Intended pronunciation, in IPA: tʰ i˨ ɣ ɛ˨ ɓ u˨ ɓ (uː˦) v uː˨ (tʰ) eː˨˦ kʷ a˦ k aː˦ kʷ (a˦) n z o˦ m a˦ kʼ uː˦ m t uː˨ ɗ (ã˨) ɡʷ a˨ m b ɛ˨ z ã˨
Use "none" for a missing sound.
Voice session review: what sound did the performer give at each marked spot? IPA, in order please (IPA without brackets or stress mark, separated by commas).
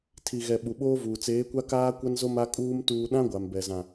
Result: oː˦, t͡s, a˦, ã˦